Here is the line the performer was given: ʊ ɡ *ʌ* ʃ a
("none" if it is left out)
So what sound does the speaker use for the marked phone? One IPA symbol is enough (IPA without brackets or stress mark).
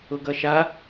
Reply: ʌ